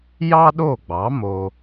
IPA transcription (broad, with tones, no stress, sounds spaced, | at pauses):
j ɑ˥ ɗ o˥˩ ɡ͡b ɑ˩˥ m o˧